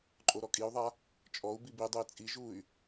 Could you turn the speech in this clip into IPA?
ǃʼoɾɔkʼiu̯ðˤa | t͡ʃʼɔu̯bib idˤui̯ t͡sʼiʒuy̯

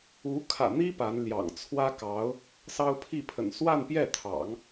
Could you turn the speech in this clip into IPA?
u˧˥ kʰä̰˨˩n̪i˥ pa˧˥nljɑ̰˨˩ŋ t͡sʰwä˥kɑ˧˥ʊ̯ | sɑ˥ʊ̯pʰi˥˩pʰə̰˨˩n swa˥˧npjɛ˥˩t̪ʰɑ̰˨˩˦ŋ

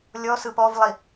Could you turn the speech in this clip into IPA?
lʲɔsɯ pɔvlˠi

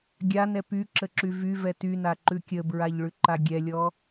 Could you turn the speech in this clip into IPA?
ɡʲan ɛpyǁə ǁyvyvɛ tyna ǃʉkʲəbɹaʎ ɭʉǃaɡʲɛlʲɔ

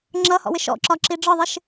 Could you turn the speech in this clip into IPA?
ŋ͡ǁʌhɔ̰wɪ ʃɔ̰ǁɒǁi ɖ͡ʐɒðˤɪʃ

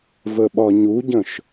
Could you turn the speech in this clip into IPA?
vəɓɒɲuɟə̃ʃ

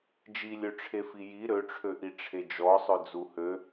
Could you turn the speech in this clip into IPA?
d͡ʒilʲøʈ͡ʂʰefi ji ɾøʈ͡ʂʰøʔi ʈ͡ʂʰed͡ʒɔsˤø d͡zuhø

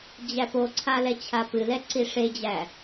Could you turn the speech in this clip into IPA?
d͡ʑæpoǀʰa lɛt͡ɕʰapɨlɛ ǀiʂed͡ʑæ

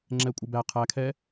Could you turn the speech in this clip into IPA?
ŋ͡ǁɛkʷʼə˞bæ qʰækʰɛ

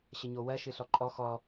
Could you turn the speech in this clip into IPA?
ɕəɲowɜ ʃɨɬɔǃʼɔ xɔ

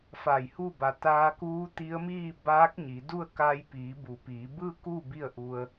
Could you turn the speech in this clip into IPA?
fa˧˩jhu˥˨ ba˩t̪aː˧kuː˧˥t̪i˧˥ə̯ miː˥˨baː˧˥k̚ɲi˩˧du˥˨ə̯ kaː˧jpiː˩˧bu˩˧piː˩˧ bɯː˥˨kuː˥˨ bi˥˨ə̯ʔu˧ə̯

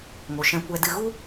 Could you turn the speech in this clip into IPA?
ŋo˨ʃɛ̃˧ kʷɛ˧dɨ˧ ɣu˦

